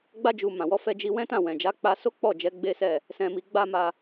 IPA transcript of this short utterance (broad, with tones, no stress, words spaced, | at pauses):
ɡ͡ba˧d͡ʒu˨ mã˨wɔ˧fɛ˧ d͡ʒi˧wɛ̃˦tã˦˨ wɛ̃˨d͡ʒa˨˦k͡pa˧so˦ k͡pɔ˦˨d͡ʒɛ˨˦ ɡ͡be˦sɛ˦˨ | sɛ̃˨mi˨ɡ͡ba˧ ma˧